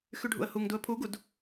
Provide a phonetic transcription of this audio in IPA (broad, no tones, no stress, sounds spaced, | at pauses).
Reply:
x y ɖʱ ṵ ə̯ h u ŋ d u ə̯ pʰ u ɡ u d